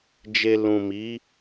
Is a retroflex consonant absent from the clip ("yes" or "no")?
yes